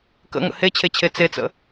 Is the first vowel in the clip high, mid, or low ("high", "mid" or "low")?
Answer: mid